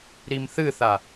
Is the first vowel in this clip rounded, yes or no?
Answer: no